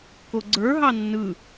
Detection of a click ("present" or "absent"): present